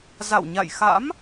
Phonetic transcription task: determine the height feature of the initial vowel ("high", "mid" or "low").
low